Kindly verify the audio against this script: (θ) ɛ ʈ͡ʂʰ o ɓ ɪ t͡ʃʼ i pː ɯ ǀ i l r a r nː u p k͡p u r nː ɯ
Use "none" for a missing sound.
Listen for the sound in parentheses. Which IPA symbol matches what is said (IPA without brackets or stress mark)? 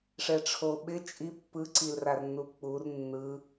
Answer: ʂ